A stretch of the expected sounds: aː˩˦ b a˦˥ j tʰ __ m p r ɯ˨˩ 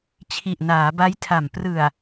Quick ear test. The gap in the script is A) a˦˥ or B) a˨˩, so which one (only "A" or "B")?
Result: B